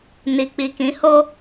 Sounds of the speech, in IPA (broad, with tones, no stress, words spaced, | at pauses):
ni˨k͡pi˨kĩ˨˦ho˦